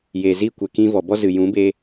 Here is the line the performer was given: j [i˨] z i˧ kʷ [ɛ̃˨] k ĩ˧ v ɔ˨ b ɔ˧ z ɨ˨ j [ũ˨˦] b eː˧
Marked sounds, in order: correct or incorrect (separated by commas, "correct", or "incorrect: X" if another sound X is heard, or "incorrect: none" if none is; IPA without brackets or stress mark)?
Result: incorrect: e˨, incorrect: ɛ˨, correct